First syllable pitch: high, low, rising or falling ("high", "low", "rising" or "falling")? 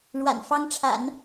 low